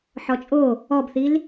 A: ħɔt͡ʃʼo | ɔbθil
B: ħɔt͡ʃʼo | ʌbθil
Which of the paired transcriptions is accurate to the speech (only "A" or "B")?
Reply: A